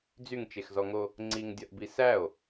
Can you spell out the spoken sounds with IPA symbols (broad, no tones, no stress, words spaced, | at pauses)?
d͡zyŋt͡ʃexzɔŋo | ŋ͡ǀiŋdʲɒʔbi sæo̯